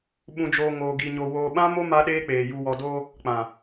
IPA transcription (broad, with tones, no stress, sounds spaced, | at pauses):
ɓ ũ˨ d͡ʒ oː˨ ŋ oː˨ ɡ i˨ ɲ o˨ w oː˨ ɓ ã˦ m o˦ m a˦ ɗ eː˦ k͡p eː˨ j u˨ w ɔ˨ d oː˦ | k͡p ã˨